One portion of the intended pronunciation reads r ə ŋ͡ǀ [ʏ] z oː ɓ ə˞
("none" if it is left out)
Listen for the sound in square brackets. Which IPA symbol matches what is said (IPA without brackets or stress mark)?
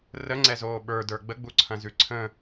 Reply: ɛ